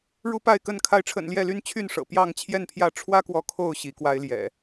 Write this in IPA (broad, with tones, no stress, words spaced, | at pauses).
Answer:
ɻu˦pa˥˨ɪ̯kə˥˨n kʰa˨˦ɪ̯ʈ͡ʂʰə̰˨˩n ljɛ˥˨ly˦nt͡ɕʰy˥˨n ʂɤ̰˨˩ pjɑ˥˨ŋt͡ɕʰjɛ˥˨npʰjä˥˨ ʈ͡ʂʰwä˦kwɔ˨˦ kʰo˥˨ʊ̯ ɕi˨˦kwa˦ɪ̯ljɛ̰˨˩